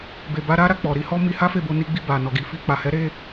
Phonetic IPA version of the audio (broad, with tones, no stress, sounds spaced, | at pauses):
b e˧ b a˦ ɾ a˦ ɾ a˧ k͡p ɔ˨ ɾ i˧ h ɔ˦ m i˧ h a˦ f e˦˨ b o˧ n i˧ ɡ͡b i˧ b a˨ n ɔ˨ ɡ i˨ f i˧ k͡p a˨ h ɛ˨˦ ɾ e˦